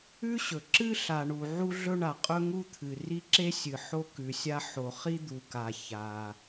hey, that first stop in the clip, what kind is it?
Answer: click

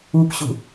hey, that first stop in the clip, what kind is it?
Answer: plain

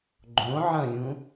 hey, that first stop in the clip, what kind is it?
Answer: click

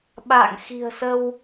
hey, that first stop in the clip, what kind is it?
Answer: implosive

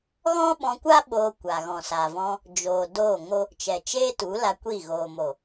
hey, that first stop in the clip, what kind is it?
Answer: implosive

